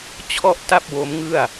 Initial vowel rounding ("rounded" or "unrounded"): rounded